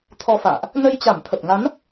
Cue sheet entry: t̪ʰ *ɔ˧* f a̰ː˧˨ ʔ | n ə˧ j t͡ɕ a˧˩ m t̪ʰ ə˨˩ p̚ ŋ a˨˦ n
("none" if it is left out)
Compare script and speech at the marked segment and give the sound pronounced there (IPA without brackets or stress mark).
ɔ˧